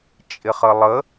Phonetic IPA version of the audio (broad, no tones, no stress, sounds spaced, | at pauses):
t͡ʃʼ ɪ χ ə lˠ ə